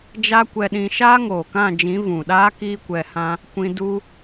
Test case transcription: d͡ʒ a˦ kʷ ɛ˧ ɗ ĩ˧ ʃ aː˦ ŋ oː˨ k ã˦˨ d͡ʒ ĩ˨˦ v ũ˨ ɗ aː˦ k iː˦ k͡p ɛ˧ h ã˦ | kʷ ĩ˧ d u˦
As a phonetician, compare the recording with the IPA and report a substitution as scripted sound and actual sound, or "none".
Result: k͡p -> kʷ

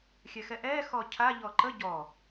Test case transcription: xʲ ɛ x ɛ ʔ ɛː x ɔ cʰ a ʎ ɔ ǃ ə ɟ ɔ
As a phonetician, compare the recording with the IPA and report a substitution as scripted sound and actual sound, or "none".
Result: none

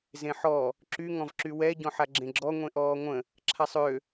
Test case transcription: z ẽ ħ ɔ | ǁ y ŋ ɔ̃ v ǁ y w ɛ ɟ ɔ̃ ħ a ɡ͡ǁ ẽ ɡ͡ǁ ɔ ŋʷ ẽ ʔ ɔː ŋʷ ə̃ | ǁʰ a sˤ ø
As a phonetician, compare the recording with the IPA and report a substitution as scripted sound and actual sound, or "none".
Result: none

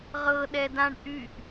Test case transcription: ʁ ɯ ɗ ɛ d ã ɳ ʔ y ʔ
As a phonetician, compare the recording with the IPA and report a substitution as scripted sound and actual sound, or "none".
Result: ɯ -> ɤ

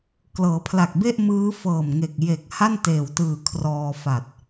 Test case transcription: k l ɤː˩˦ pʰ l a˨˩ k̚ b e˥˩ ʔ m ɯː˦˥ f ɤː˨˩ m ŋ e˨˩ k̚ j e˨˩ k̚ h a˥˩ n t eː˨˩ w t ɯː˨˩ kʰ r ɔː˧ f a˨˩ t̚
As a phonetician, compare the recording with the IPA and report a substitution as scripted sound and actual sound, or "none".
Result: none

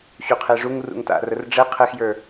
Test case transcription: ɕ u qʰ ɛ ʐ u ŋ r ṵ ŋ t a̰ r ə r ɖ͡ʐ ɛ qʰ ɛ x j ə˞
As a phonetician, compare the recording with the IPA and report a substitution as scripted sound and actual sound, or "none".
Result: none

